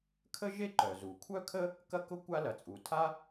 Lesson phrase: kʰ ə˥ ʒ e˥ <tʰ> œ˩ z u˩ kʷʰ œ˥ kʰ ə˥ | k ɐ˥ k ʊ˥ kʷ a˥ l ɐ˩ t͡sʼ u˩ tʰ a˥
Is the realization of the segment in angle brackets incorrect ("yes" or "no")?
yes